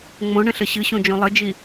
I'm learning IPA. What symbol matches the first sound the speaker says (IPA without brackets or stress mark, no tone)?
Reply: ŋ͡m